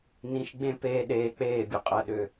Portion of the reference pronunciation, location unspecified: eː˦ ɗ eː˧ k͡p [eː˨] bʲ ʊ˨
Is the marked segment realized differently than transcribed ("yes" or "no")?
yes